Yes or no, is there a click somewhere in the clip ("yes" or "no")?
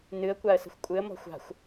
no